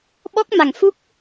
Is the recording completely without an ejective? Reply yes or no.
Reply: yes